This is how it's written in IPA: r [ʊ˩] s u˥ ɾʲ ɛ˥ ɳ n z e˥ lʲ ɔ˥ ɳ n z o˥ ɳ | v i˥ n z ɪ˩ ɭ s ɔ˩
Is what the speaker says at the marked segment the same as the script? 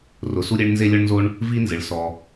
yes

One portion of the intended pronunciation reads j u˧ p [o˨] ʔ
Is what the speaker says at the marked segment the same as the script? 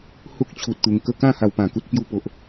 yes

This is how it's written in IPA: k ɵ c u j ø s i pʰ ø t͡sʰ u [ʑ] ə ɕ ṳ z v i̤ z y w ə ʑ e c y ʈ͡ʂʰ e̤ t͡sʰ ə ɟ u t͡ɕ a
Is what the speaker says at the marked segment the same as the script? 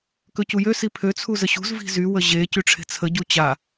no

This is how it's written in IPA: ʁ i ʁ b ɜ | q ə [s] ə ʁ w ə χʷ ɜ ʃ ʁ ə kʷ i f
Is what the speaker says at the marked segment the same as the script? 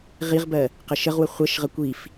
no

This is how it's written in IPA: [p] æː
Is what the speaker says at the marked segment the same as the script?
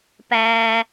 yes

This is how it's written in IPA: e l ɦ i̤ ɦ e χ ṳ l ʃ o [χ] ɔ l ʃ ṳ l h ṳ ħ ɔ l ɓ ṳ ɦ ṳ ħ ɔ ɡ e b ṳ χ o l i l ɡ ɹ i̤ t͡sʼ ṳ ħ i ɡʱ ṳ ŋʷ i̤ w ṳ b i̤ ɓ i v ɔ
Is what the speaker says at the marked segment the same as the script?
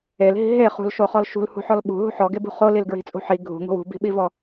yes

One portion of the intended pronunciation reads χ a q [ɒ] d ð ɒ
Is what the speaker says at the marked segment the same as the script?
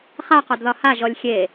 yes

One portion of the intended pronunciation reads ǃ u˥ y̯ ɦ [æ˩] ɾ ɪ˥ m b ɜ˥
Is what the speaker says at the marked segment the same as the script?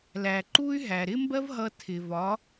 yes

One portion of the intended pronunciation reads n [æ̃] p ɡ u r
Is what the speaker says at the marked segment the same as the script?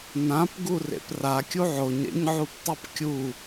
no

